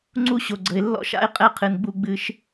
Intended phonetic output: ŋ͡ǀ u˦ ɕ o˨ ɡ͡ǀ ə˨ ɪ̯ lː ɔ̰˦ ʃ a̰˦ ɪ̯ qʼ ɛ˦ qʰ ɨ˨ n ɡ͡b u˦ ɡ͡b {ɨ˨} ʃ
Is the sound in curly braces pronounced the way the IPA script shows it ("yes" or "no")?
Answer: no